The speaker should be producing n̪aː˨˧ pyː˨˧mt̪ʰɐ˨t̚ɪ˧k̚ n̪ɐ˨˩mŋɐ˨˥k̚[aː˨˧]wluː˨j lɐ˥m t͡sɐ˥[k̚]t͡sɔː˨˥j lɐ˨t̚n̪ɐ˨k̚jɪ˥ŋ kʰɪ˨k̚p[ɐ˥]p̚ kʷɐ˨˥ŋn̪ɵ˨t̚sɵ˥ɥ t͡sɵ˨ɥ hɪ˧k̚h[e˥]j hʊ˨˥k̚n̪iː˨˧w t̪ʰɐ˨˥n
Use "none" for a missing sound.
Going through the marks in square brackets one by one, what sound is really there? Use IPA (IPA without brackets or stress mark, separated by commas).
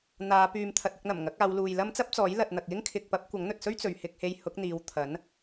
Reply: aː˨˧, p̚, ɐ˧, e˧